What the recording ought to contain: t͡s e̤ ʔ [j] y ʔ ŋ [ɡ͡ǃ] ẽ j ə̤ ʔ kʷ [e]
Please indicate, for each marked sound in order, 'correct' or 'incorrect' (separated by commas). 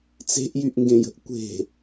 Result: correct, incorrect, incorrect